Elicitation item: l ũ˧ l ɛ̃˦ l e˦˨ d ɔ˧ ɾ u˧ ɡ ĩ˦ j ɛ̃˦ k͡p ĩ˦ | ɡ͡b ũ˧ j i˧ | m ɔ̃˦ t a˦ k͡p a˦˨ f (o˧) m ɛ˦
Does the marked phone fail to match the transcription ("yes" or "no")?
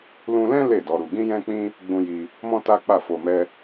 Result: no